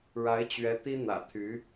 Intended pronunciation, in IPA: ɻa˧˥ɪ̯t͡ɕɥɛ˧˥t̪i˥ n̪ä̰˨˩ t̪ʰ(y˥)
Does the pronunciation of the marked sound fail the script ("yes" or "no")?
yes